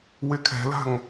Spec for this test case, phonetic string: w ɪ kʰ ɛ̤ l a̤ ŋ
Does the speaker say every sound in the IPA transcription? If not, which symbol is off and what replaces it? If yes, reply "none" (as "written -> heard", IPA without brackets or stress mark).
none